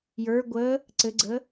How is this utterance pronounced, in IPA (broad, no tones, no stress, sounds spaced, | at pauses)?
j ə˞ ɡʷ ə | ǀ ɘ ɡ͡ǀ ə